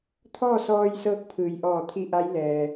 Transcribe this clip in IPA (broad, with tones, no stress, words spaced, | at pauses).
t̪ʰɔː˥˨sɔː˧jsɤː˧k̚ pʰɯː˩jʔɔː˧˩ t̪ʰi˧ʔa˧˥j lɛː˩